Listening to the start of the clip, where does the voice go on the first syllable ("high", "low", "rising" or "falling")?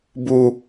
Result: low